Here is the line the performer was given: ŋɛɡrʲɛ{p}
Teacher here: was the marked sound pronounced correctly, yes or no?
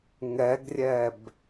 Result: no